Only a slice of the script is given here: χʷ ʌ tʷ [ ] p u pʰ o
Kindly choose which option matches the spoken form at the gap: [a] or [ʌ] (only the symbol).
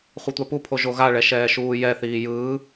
a